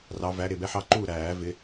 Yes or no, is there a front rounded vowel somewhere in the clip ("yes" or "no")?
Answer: no